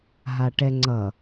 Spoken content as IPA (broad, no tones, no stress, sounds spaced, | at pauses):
ɦ a ʈ ɛ ŋ͡ǀ ʌ